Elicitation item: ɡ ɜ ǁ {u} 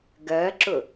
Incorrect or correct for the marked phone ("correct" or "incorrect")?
incorrect